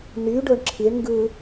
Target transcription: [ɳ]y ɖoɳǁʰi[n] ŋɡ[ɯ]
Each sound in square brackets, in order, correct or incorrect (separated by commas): incorrect, incorrect, correct